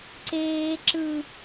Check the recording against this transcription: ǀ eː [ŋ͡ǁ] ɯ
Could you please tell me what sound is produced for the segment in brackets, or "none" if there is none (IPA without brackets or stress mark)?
ǁ